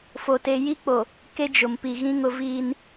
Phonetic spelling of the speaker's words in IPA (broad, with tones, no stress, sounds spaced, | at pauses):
f o˨ t e˨ j i˦ k͡p o˨ | k e˦ d͡ʒ ʊ˨ m p i˨ ɣ ĩ˦ ŋ ʊ˦ v iː˦ n